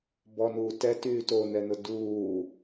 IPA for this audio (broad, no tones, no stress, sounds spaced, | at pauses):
b ɔ n uː t ɛ t yː t o n ɛ n ʊ d uː